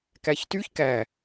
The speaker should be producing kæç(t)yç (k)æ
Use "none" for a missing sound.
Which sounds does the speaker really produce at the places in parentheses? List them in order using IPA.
t, k

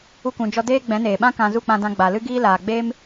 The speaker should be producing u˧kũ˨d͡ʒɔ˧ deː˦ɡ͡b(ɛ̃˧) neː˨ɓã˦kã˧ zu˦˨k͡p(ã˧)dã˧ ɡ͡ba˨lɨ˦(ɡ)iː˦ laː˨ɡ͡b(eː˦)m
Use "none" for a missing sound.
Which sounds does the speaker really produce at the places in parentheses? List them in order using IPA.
ɛ̃˨˦, ã˧, ɡ, eː˦

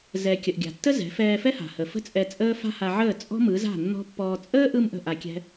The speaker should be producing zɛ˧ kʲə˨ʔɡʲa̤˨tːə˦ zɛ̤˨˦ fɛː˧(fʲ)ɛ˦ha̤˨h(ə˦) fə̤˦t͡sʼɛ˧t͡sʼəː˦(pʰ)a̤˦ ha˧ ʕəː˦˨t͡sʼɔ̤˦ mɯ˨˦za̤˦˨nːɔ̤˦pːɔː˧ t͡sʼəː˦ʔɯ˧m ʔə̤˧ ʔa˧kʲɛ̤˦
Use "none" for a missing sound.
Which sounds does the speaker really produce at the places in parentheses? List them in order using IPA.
f, ə˨, f

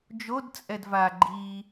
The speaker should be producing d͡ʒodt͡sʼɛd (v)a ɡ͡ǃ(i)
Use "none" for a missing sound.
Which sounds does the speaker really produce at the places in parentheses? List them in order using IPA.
v, i

